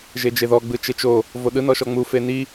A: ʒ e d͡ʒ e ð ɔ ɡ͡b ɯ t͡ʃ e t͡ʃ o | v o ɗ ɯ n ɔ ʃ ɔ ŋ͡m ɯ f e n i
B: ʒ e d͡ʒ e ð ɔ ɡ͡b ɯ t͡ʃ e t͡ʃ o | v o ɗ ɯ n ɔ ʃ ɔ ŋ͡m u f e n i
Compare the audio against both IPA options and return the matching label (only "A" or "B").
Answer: B